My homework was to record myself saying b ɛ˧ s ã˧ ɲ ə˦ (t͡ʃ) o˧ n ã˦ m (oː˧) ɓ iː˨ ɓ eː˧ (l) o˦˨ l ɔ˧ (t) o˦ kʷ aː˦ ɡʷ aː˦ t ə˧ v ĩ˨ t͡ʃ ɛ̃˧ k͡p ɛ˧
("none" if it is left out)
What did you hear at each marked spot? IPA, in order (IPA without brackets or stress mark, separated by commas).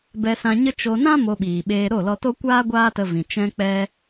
t͡ʃ, o˧, ɾ, t